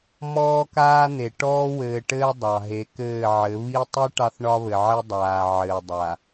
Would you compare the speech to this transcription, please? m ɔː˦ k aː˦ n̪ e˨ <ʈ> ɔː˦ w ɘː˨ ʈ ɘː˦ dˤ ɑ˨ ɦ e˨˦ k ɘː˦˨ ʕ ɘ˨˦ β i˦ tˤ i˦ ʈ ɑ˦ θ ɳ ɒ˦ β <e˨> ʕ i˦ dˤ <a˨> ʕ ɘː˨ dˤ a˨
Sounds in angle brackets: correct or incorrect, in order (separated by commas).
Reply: correct, incorrect, incorrect